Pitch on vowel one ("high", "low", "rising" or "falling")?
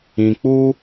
low